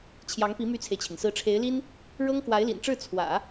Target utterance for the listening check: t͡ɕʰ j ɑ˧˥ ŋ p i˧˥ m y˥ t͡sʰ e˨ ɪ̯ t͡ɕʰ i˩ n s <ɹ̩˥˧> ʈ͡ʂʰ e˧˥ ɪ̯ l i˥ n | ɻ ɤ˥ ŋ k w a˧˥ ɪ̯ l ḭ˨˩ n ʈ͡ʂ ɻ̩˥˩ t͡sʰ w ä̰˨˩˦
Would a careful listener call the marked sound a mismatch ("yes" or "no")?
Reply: yes